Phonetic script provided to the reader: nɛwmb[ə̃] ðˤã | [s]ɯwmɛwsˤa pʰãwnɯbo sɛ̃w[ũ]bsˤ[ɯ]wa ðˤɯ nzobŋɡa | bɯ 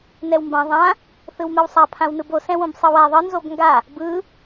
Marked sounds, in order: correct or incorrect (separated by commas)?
incorrect, incorrect, incorrect, correct